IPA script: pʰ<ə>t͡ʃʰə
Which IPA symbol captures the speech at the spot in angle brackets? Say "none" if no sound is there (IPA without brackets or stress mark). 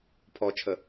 ɔ